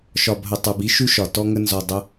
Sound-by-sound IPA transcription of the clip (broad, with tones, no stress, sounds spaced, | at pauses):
ʃ ɒ˨ b ɦ ə˨ tˤ ə˞˧ b i˦ ʃ ʉ˦ ʃ ɒ˨ t ɔ˧ ŋ ə˧ n z ɔ˨ dˤ ə˧